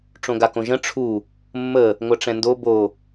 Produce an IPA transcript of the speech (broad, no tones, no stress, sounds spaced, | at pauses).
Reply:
ʈ͡ʂ õ ɡ a k õ ʒ ə̃ ʈ͡ʂʰ u | mː ə | ŋʷ ɐ ʈ͡ʂ ɛ̃ n d o b o